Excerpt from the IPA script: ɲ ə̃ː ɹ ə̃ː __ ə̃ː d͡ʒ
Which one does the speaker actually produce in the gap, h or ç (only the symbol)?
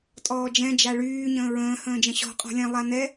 h